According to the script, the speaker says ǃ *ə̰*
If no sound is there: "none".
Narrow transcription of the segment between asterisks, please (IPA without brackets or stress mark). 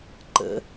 ə̰